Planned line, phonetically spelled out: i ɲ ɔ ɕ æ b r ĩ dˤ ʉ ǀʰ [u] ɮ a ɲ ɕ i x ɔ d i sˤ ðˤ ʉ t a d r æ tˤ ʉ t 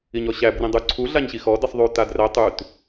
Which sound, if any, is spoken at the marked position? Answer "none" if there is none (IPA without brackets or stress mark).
u